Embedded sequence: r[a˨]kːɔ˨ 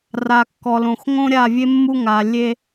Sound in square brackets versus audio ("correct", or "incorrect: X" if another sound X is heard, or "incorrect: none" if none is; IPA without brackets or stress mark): correct